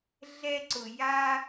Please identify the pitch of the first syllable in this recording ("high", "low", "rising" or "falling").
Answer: high